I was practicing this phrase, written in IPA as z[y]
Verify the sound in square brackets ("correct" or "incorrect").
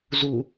incorrect